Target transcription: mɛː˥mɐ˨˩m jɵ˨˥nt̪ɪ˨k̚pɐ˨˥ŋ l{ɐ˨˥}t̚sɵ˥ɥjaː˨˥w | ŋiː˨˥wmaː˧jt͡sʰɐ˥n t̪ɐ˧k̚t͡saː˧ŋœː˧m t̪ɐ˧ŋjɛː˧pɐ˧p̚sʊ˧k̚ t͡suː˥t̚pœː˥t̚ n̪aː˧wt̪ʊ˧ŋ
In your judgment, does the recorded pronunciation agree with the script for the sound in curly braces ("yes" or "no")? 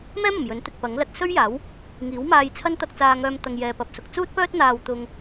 yes